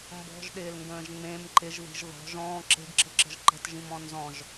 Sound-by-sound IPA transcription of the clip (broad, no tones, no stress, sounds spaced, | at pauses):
m b ɔ̤ ʒ ɗ ɪː l ŋ ɡ ə̃ː ʒ ŋ͡m ẽ m ǃ ɪ ʒ ð i̤ ʒ ð ɔ̤ ʒ ɔ̃ː ǁ e̤ ɡ ǁ ə̤ ǁ ə̤ ʒ ǃ ə̤ t ʒ ĩ m ɔ̃ n z ɔ̃ ʒ